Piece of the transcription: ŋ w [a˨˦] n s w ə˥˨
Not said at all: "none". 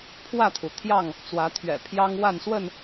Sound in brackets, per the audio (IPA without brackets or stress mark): a˥˨